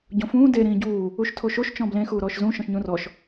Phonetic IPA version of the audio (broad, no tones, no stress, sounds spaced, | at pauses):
ɟ õ f ũː d e ɾ ĩː ɟ uː | u ʃ tʰ o ʃ o ʃ t͡ʃ ɔ̃ b l ẽ x uː ɾ ɔː ʃ z ũ ʃ ɔ̃ ʃ ɲ ũ r ɔ ʃ